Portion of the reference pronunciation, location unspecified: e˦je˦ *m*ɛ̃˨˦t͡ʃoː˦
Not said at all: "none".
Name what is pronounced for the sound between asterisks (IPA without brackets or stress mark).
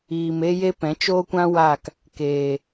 p